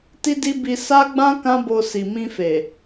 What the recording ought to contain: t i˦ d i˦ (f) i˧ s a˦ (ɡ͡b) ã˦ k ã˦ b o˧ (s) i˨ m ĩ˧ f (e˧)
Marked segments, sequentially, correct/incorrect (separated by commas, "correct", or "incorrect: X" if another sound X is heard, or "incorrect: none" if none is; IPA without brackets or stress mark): incorrect: b, correct, correct, incorrect: e˨